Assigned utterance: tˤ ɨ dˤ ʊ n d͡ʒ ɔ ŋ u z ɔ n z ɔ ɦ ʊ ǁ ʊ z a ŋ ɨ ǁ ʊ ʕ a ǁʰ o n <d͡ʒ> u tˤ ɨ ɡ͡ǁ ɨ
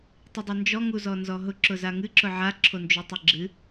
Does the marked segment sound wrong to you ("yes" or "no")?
no